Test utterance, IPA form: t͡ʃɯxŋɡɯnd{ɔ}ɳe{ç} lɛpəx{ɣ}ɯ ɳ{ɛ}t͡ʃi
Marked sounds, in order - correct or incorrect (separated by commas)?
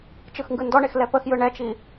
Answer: correct, incorrect, incorrect, correct